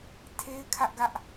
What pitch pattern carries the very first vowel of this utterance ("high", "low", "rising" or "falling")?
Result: high